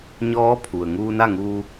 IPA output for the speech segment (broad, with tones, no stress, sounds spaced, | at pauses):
ɲ ɔː˧˥ pʰ u˩ ə̯ ŋ uː˧ n a˥˨ ŋ uː˧